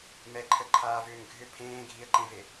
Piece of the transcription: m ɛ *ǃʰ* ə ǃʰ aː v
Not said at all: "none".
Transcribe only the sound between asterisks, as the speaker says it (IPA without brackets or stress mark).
ǃʰ